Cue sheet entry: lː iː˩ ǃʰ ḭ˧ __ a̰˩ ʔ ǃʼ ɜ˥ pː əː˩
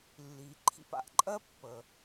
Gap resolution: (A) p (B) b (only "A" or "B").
A